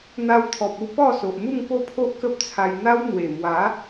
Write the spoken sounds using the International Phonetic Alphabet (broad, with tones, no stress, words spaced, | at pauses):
n̪a˧wt̪ʰɔ˨p̚u˥˧ pɔ˥˧so˨ʔ mu˥˧ŋ po˥˧pʰo˦ʔkə˦p̚t͡sʰa˧j n̪a˦wn̪we˨˩mwa˨˦